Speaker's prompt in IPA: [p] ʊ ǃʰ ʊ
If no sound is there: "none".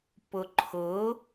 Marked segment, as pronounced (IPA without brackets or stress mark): p